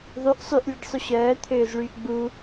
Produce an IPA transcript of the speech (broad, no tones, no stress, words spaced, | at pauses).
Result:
ðˤyʔ sˤyʔlʲəɖsˤy ɕœːt̪ʰøːzɭyːʔ ɡ͡bu